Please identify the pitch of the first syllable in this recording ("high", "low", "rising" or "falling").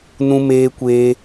high